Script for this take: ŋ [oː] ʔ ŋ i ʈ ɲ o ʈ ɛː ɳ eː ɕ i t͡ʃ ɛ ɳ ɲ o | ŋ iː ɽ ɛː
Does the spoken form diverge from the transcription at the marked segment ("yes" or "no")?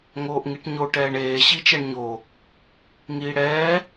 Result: no